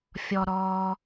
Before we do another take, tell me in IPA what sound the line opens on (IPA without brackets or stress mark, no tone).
fʲ